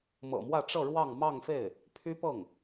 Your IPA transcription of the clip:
m ɤ̰˨˩ m w ä˥˧ ʈ͡ʂ ɤ˥˧ ɻ w ɑ˥˧ ŋ m ɑ˥˧ ŋ f e˥˩ ɪ̯ | pʰ y˥ p ɤ˥˩ ŋ

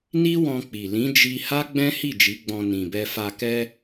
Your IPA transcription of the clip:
n i˦ w ɔ̃˧ k͡p i˨ l ĩ˨˦ d͡ʒ i˧ h a˦ ɡ͡b ɛ̃˦ h i˦˨ d͡ʒ i˨˦ ɡ͡b ɔ̃˧ n ĩ˨ b ɛ˧ f a˧ k ɛ˦

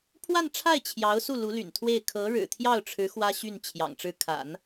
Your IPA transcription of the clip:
pʰ w a˥˧ n ʈ͡ʂʰ a˥˩ ɪ̯ t͡ɕʰ j ɑ˧˥ ʊ̯ s u˥˩ l u˧˥ l y̰˨˩ n t̪ʰ w e˥˩ ɪ̯ kʰ ɤ˧˥ ɻ ɻ̩˨˩ t̪ʰ j ɑ˥˩ ʊ̯ ʈ͡ʂʰ ɻ̩˧˥ x w ä˥ ɕ y˥˩ n t͡ɕʰ j ɑ̰˨˩ ŋ ʈ͡ʂ ɻ̩˥˩ kʰ a̰˨˩˦ n

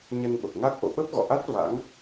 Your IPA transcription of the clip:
ɲ ə˧ n ɓ ə˨˩ p̚ ŋ a˦˥ k̚ ʔ o̰˧˨ ɓ ə˦˥ p̚ ɣ ɔ̰˧˨ ʔ a˦˥ t̚ v a̰˧˥ ŋ

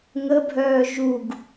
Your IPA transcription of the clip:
ŋ ə bʱ œː ʒ u ɡ

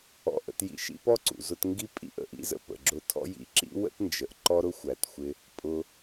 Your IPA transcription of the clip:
ɔ̰˧ ʔ ə̰˧ t j ḭ˧ ʃ ḭ˥ p ɔ˥ ǀ ṵ˩ z ʊ˧ t ŋ ɡ i˥ pʼ ḭ˥ ʔ ə̰˧ ʔ ḭ˥ z ə̰˧ p ə̰˩ ɡ͡ǁ ʊ˧ tʰ ɔ̰˥ j ḭ˥ ǁ ḭ˥ w ə̰˥ t n d͡ʒ ə˩ ʔ ǃ ɔ˥ ɾ ʊ˥ xʷ æ˩ t xʷ ɪ˧ | pʼ ʊ˧

